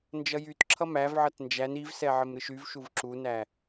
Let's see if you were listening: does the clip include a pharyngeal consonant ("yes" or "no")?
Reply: yes